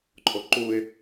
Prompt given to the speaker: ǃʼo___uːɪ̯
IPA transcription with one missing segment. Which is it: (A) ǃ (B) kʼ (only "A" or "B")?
A